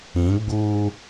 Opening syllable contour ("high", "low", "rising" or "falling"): rising